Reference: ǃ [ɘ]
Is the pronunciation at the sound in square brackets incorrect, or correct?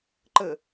correct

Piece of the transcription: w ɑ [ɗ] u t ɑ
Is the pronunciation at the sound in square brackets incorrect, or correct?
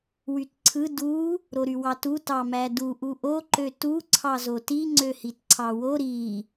incorrect: t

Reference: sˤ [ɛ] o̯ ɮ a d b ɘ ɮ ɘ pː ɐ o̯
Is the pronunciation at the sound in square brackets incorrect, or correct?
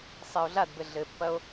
correct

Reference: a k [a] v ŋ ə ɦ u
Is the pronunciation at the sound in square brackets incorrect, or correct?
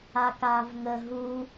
incorrect: aː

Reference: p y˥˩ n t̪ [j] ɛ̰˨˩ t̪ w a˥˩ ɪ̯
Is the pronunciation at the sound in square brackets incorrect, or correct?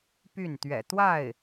incorrect: ɥ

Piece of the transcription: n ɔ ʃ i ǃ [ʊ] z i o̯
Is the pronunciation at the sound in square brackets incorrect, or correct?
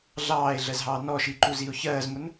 incorrect: u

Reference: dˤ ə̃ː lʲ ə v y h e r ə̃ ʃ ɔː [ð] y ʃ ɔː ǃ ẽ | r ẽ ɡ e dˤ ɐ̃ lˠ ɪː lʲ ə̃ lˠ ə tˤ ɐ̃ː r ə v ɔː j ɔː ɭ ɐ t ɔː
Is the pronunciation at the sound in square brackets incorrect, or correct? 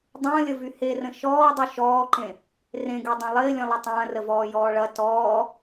incorrect: dˤ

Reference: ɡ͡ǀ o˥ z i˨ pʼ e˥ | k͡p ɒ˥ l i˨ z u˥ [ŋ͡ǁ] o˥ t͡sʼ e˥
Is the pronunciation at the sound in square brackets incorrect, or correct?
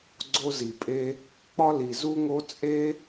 incorrect: ŋ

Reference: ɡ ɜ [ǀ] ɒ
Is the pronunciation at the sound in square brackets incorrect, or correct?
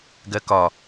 incorrect: k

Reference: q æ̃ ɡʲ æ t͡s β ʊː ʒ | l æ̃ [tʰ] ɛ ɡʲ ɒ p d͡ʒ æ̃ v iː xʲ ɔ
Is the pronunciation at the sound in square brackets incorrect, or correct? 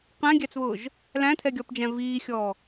correct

